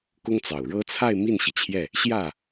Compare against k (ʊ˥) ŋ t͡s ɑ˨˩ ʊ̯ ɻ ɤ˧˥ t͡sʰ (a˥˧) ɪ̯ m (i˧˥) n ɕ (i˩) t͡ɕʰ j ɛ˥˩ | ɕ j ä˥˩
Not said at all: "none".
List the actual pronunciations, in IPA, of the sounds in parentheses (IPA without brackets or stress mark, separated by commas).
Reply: ʊ˥, a˥˧, i˥˩, i˩